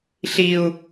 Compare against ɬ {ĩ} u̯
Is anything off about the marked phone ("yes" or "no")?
yes